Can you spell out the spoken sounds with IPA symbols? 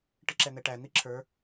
ʈ ɪ ǁ ɛ n̪ ɛ ʈ æ n̪ i ǁʰ ə˞

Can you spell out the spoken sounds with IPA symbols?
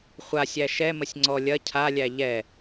χʷ a sʲ æ ʃ ɛ m ə sʲ ŋ͡ǀ ɔ lʲ ɐ cʰ a lʲ æ ʎ ɛ

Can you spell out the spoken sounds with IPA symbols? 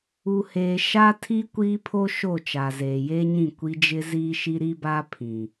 u˨ h eː˨ ʃ a˦ tʰ i˦ kʷ iː˦ pʰ o˦ ʃ o˦˨ t͡ʃ a˨ z eː˨ j e˦ ɲ ĩ˦˨ kʷ i˦ d͡ʒ ɪ˦ z iː˦ ʃ i˦ ɾ i˦ b a˦ pʰ ĩ˨

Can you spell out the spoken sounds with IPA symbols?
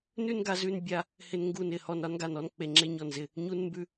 n ʉ˥˧ n ɡ a˧ z ʉ˧ n bʲ a˧ | h ɪ˧ n ŋ ɡ u˧˩ n ɪ˧˩ h ɔ˧˩ n ɾ ɒ˥˧ n ɡ a˧˩ n ɔ˥˧ n k͡p e˧˩ ŋ͡ǁ e˥˧ ɲ ɔ˧˩ n z ɪ˧˩ | ɲ u˧ n m b ʉ˧

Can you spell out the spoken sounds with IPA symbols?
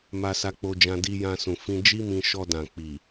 m a˧ s a˧ k͡p o˧ d͡ʒ ã˧ d i˧ j ã˧ s ũ˨ f ĩ˧ d͡ʒ i˦ m ĩ˧ ʃ ɔ˧ d ã˨ k͡p i˨

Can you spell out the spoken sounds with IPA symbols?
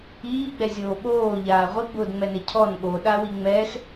iː ɡ͡b ɛ zʲ oː ɓ oː ʎ aː ʁʷ i ɡ͡b ʊː d ŋ͡m ɛ n e cʰ ɔ n ɠ o ɗ a w i ŋ͡m ɛ x

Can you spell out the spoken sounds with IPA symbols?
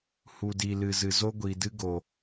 h u˨ d i˨ l ɨ˨ z ɨ˨ z o˦ ɡʷ i˨ d ɨ˦ ɡ o˨

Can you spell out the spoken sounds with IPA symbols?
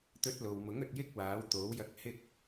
t̪ ɵ˧ t̚ l o˨ w m ʊ˨˥ ŋ ɵ˨˥ t̚ j ɪ˥ k̚ w aː˨˥ w t̪ o˨˥ w j ɐ˧ k̚ h ɪ˥ k̚

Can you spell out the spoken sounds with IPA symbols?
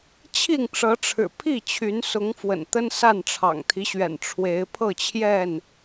t͡ɕʰ i˥˨ ŋ ʈ͡ʂ ɤ˨˦ ʈ͡ʂʰ ɻ̩˨˩ pʰ i˥˨ t͡ɕʰ y˨˦ n s ʊ˨˦ ŋ f w ə̰˨˩ n t̪ ə˦ n s a˥˨ n ʈ͡ʂʰ ɑ̰˨˩ ŋ t̪ʰ i˦ ɕ ɥ ɛ̰˨˩ n ʈ͡ʂʰ w e˨˦ ɪ̯ pʰ ɤ˥˨ t͡ɕʰ j ɛ˥˨ n

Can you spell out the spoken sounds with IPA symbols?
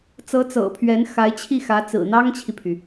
t͡s ɤ˧˥ t͡s ɤ̰˨˩ pʰ ɥ ɛ˧˥ n x a˧˥ ɪ̯ t͡ɕʰ i˥˩ x ä˧˥ t͡s ɹ̩˨˩ n̪ ɑ˥ ŋ t͡ɕʰ i˨ pʰ y˩

